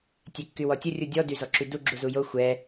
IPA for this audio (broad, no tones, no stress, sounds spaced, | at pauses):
tʲ ɛ kː y w ɔ tʲ ə rʲ u dʲ ɔ d y z ɔ ǁ y d u ɡ͡ǁ u z u j o xʷ ɛ